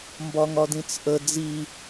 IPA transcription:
m b ɒ ŋ ɒ d ĩ t͡s ʔ ə d͡z i

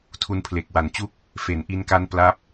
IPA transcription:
tʰ u˧ n pʰ l e˨˩ k̚ w a˨˩ n t͡ɕ u˥˩ k̚ | f e˩˦ n ʔ i˧ n k a˦˥ n p l a˦˥ p̚

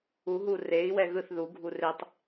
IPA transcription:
u ɦ u r e i̯ w ɛ ɣ ɯ θ ð u ɡʱ u r e tˤ

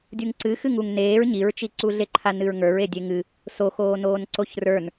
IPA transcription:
dʲ u ŋ ǀ ɨ x ɨ ŋ u ŋ n eː ɹ ɲ i ɹ t͡ʃ i ǀ u ɮ e ǃʰ a n ɨ ɹ ŋ ə˞ ɹ e dʲ e ŋ ɨ | s o x oː n oː n ǀ o ç r ə˞ n

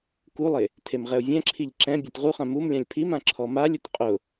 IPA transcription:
k u lˠ e | tʰ e m ʁ ɛ ʊ̯ vʲ ɛ̃ ǁʰ i ʎ ǁ ɛ̃ bʲ ɛ t ʁ u χ ã m u m lʲ ã lʲ pʰ i m ã ǁʰ ɔ m a lʲ ʊ t qʼ ʊ

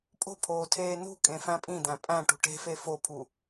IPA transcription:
pʼ o̤ pʰ oː tʰ eː n ṳ kʼ ẽ f æ̃ pʼ ĩ d̪ æ̃ pʼ æ̃ ʈ ṳ ʈ e̤ f e f o pʰ u

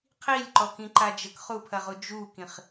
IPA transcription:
qʰ i lʲ ǃ ɔ k ĩ ǃ a d͡ʒ ə k χ u pʰ ɐ ʁ u d͡ʒ u k ĩ χ

